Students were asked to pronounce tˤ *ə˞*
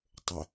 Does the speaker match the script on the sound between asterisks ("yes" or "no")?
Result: no